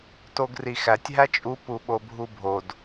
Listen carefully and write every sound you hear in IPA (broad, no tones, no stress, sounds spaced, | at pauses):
t o ɡ r i x æ tʲ ɦ æ t͡ʃʼ u p u ɓ o bʱ u bʱ o d